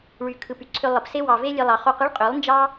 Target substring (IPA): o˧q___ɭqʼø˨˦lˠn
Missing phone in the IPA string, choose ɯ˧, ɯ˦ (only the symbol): ɯ˦